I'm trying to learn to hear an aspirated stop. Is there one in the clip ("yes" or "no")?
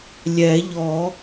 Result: no